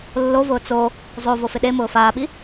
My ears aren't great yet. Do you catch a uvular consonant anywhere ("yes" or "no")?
no